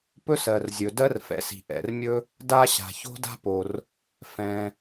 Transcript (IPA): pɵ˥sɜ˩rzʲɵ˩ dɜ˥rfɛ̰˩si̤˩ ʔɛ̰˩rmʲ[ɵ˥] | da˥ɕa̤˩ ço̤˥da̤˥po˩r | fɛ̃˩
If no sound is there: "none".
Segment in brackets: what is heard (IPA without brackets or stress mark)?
ɵ˥